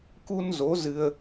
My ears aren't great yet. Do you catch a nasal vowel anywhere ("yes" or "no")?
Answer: no